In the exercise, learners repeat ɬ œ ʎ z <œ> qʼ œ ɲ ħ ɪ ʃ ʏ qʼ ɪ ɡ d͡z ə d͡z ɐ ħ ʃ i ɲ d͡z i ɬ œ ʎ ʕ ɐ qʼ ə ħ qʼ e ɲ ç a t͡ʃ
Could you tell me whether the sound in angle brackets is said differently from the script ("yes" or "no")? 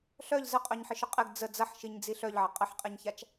yes